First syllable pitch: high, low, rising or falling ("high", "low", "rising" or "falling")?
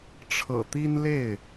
low